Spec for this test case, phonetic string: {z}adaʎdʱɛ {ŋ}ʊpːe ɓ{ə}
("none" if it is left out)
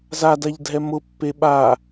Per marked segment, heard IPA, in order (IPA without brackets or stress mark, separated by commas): z, m, a